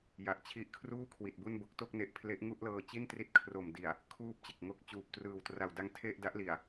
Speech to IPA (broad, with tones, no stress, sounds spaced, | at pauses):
j a˨˩ ʔ t͡ɕʰ i˦˥ ʔ kʰ r uː˥˩ kʰ w i˨˩ t̚ b u˥˩ n b o˦˥ k̚ t o˥˩ k̚ n e˦˥ ʔ pʰ l e˦˥ ʔ ŋ u˥˩ ʔ l ɤː˧ t͡ɕ i˥˩ n t r i˦˥ t̚ kʰ r o˨˩ m d i˨˩ a̯ | kʰ uː˥˩ p̚ t͡ɕ e˨˩ k̚ ŋ o˥˩ k̚ t͡ɕ uː˨˩ p̚ t r ɯː˨˩ w t r a˨˩ w d a˦˥ ŋ tʰ e˥˩ ʔ d a˦˥ ʔ l i˨˩ a̯